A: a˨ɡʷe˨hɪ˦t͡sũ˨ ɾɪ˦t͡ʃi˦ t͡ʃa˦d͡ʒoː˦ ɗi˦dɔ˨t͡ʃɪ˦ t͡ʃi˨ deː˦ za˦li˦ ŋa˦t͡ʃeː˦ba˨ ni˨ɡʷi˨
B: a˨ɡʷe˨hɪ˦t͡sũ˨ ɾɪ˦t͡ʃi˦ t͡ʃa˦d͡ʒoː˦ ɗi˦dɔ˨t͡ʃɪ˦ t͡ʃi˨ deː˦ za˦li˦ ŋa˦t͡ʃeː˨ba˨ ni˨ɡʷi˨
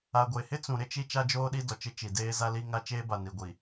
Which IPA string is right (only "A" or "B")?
A